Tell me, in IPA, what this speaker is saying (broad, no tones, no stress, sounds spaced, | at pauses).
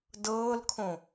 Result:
d ɤː l kʰ õ